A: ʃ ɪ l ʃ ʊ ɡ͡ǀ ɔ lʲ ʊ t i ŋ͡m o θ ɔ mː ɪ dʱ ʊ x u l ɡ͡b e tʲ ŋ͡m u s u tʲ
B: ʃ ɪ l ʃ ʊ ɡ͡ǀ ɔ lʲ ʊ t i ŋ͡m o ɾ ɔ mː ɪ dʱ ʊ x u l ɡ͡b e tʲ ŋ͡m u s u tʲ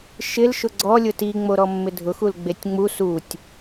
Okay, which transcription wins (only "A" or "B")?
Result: B